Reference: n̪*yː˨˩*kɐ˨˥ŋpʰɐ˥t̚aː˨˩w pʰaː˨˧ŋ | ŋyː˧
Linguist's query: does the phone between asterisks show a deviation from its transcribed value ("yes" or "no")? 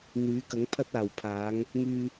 yes